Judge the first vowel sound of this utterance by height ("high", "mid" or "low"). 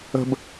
mid